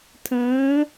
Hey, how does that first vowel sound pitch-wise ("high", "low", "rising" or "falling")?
rising